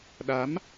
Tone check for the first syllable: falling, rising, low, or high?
rising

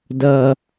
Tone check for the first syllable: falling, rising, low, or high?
low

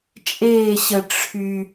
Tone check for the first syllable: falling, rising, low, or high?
falling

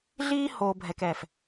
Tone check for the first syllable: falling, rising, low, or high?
high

